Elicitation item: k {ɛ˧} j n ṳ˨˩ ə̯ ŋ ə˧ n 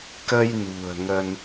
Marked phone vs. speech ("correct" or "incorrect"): incorrect